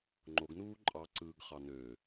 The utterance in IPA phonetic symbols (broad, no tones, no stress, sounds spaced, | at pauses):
ŋ͡ǃ o ɡ n uː ǃʼ ɑ ǀ ɯː ɡ χ ɑ n ø